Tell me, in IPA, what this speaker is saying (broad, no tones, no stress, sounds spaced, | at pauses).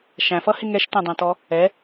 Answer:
ʃ æ̃ f ʌ h ɪ ŋ ɛ ʃ t ɛ̃ dˤ æ̃ t ɔ | ɛ